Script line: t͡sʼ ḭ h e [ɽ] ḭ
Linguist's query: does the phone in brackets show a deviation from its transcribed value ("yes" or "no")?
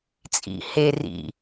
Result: yes